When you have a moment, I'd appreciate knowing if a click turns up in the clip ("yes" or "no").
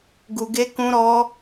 no